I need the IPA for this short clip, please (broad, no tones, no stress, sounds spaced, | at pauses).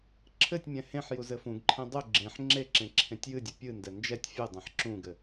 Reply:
ǁʰ ɘ tʲ mʲ ɛ̃ h ẽ ħ j u z ɘ f ũ ɡ ǃʰ ẽ dˤ u ɡ͡ǁ ẽ ħ ŋ͡ǁ e ǁ ẽ ǁʰ ẽ tʲ j ɨ dʲ ɘ pʲ ɨ n d ɛ n d͡ʒ ɛ tʲ fʲ ɨ dˤ ẽ ħ ǁ ũ ɡ ɘ